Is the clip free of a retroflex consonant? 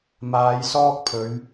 yes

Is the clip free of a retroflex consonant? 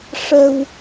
no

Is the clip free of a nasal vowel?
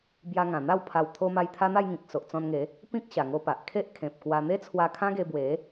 no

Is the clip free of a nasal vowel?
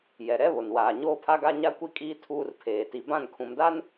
no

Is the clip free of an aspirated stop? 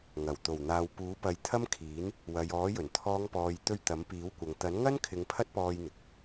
no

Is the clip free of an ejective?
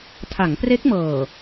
yes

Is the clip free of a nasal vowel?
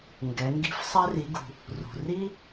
yes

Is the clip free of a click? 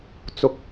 yes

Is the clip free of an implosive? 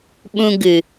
no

